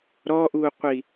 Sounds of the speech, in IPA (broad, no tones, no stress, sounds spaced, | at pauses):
ɾ ɔ ʔ uː qʷ i